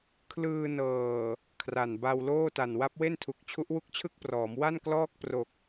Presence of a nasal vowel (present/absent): absent